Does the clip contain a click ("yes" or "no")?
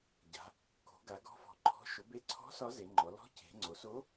yes